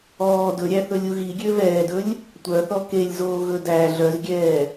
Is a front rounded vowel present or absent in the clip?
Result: present